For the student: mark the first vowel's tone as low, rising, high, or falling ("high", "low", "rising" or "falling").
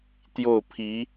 falling